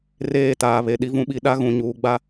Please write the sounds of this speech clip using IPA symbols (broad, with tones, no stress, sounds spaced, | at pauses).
r eː˦˨ t aː˨ β e˨ ɗ i˦ v ũ˦ ɓ i˦ ɗ a˦ ɣ ũ˨ ɲ uː˨ ɡ͡b a˦